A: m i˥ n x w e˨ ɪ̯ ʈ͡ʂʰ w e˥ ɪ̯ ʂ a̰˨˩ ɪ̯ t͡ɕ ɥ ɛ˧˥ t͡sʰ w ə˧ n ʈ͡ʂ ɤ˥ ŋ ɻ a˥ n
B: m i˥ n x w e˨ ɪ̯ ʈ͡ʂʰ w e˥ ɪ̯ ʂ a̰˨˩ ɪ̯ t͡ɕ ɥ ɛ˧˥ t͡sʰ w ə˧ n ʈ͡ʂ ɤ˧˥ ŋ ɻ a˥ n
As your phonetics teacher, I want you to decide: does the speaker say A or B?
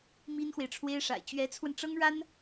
A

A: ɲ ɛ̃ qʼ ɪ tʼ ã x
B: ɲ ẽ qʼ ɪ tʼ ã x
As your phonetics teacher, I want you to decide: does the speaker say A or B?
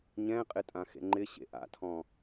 A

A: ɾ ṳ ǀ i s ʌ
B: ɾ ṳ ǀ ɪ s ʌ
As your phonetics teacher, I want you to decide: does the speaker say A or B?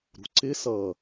B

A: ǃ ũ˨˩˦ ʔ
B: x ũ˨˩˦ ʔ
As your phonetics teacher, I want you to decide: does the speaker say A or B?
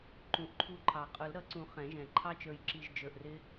A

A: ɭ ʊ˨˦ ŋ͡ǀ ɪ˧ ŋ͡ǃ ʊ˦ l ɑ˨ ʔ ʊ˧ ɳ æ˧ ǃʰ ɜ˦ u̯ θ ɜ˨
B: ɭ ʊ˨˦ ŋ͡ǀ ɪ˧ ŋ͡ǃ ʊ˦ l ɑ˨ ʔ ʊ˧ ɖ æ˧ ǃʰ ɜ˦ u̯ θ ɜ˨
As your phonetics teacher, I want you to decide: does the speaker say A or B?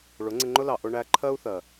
A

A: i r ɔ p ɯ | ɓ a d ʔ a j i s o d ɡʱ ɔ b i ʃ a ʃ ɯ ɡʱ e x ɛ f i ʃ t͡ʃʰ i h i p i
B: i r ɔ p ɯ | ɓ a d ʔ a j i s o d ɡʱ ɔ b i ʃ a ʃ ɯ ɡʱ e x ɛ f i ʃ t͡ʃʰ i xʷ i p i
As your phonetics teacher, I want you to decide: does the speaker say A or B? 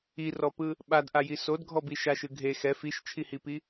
A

